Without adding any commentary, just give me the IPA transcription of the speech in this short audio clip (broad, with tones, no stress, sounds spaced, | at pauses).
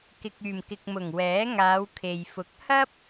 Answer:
k ɪ˨ k̚ yː˨˩ m k ɪ˨ k̚ m ʊ˨˩ ŋ w ɛː˨˥ ŋ aː˨˧ w kʰ e˨ j f ʊ˨˥ k̚ h ɐ˥ p̚